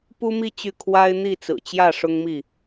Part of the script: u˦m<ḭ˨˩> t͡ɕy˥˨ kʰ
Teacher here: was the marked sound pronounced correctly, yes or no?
no